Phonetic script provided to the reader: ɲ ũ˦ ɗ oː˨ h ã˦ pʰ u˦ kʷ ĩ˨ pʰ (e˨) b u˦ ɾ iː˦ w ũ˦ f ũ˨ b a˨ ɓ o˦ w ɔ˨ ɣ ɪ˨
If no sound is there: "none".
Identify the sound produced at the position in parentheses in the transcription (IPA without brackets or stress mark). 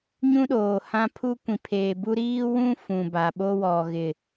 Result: eː˨